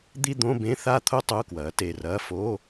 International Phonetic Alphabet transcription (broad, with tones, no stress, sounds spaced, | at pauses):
d̪ i˥˧ d̪ õ˧˥˧ b ẽ˧˥˧ θ a˥˧ t̪ʰ o˥˧ tˤ o˧˥˧ k w ɐː˩˥ t e˩˧˩ r ɐː˧˥˧ f o˧˥˧